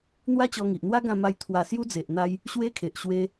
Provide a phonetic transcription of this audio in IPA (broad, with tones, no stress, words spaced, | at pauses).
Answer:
n̪wa˦t͡ɕɔ˧ŋi˨ʔn̪wa˦ ɡã˥˧ma˦j t̪ʰwa˥˧ sju˦d͡ze˨ʔ n̪a˧j | ɕwe˦kʰe˨ʔɕwe˧